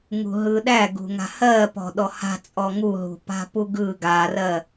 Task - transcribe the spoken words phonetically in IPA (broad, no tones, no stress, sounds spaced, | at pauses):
ŋ ṳ ɦ ɯ ɗ æ ɡ ṳ ŋ a̤ h ɜ p ɔ̤ ɗ ɔ h a̤ t͡sʼ ɔ ŋ u ɦ ṳ p a̤ p u ɡ ɯ ɡ a r ɜ